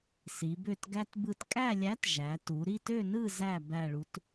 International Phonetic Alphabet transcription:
s i˩˧ b ø˦˨ t ɡ æ˦ t b ɯ˦˨ t kʼ æ˦˨ lʲ æ˨˥ t ʒ æ˩˧ t u˩˧ ɾ i˦˨ t ø˦˨ n ɯ˦˨ z æ˦˨ b æ˦˨ ɭ u˨˥ t

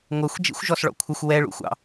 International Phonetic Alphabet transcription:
ŋʷ ʌ xʷ d͡ʒ ḭ xʷ ʒ ɔ s ɭ ɔ̰ kʷʰ ɪ xʷ w ɛ ɭ ṵ xʷ ɑ̰

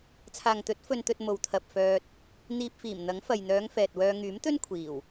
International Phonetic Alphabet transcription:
t͡sʰ aː˨ ŋ t̪ ɵ˨˥ t̚ f ɵ˨ n t̪ ɵ˨ t̚ m o˨ w t̪ʰ ɐ˨ p̚ f œː˧ t̚ | n̪ iː˧ p̚ f iː˨˩ m n̪ ɐ˨˥ ŋ f ɐ˨ j n̪ œː˨˧ ŋ f ɛː˨ t̚ w œː˧ ŋ yː˨˥ m t̪ ɵ˥ n kʷʰ iː˨˩ w

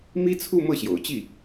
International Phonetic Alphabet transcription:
m i˥ t͡sʰ u˥˧ m ɤ˥˩ ɕ j o̰˨˩ ʊ̯ t͡ɕ i˥˩

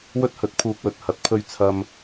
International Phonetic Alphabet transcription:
w ɵ˥ t̚ h ɵ˨˥ t̚ pʰ uː˧ k̚ w ɵ˨ t̚ h ɐ˨˥ t̚ pʰ ɵ˧ ɥ t͡sʰ ɐ˧ m

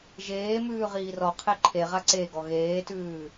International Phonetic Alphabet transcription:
ʒ eː m ʉː ʁ iː r ɔ qʰ e ǃʰ e ʁ a ǀ e ɡ ɔ ɣ eː t ʉː

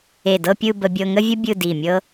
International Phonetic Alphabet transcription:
e˧˩ d ɤ˥˧ pʲ ɯ˥˧ b ə˧ bʲ ɤ˧ ŋ ə˥ vʲ ə˥ bʲ ɯ˥˧ d i˧˩ mʲ ɤ˥

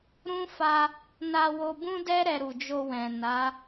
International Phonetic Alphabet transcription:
ɾ ũ˦ f a˧ | n a˧ w o˧ b ũ˦ d ɛ˦ ɾ ɛ˧ ɾ u˨ d͡ʒ o˧ w ɛ̃˨ n a˨˦

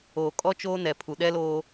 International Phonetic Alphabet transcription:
oː˨ kʼ ɔ˦ t͡ʃ oː˦ n ɛ˨ pʰ u˨ ɗ ɛ˦ l oː˦

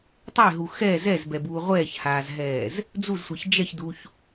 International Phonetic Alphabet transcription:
tˤ e ɦ u x ɛ z ɛ z b ɛ b uː ʁʷ ɛː ç h aː z ɦ ɛː z | d͡z u z sʷ e ç d͡ʒ ɛ ç d u ç

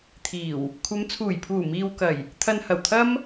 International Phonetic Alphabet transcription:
t̪ʰ iː˨˩ w | kʷʰ ɐ˨˧ m t͡sʰ uː˨˩ j pʰ uː˨˩ m iː˨ w k ɐ˨˩ j | t̪ʰ ɐ˧ n h ɐ˨˩ w t̪ʰ ɐ˥ m

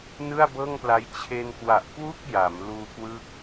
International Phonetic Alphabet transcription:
n ɯ˥˩ a̯ b ɤː˥˩ ŋ p l a˦˥ j t͡ɕʰ e˧ n k w a˨˩ ʔ k w u˥˩ k̚ j a˩˦ m l uː˧ k w ɯ˦˥ k̚

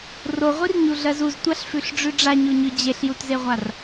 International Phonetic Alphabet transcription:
r o ʁʷ i r ɲ u ɮ ɜ z u z tʷ a ɬ f ʉ ɬ ɖ͡ʐ ʉ ɖ͡ʐ a ɲ o ɲ ʉ d͡ʑ e ɬ j u t z e ʁʷ a r

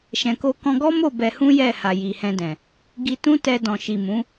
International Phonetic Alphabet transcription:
ʃ ɛ̃˨ k o˧ k ɔ̃˧ ɡ ɔ˦ m o˦˨ b ɛ˧ h ũ˦ j ɛ˦˨ h a˨ j i˨ h ɛ̃˧ d ɛ̃˨ | ɡ i˧ t ũ˦ t ɛ˧ d ɔ̃˨ ʃ i˨ m ũ˨˦

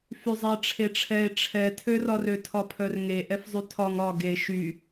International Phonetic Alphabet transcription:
f y zˤ ɛ ʈ͡ʂʰ e ʈ͡ʂʰ ɛ e̯ ʈ͡ʂʰ ɛ tʰ ø r ɒ r ø tʰ ɒ pʰ œ r ŋ e ʔ ɛ f zˤ y tʰ ɒ ŋ ɒ ɡ e ʃ y

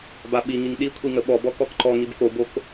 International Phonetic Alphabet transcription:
b a ɓ i ŋ i ŋ ɗ i kʷʰ i ŋ ə ɓ ɔ b ɔ k ɔ k ǃ ɔ ŋ i b k o b o k

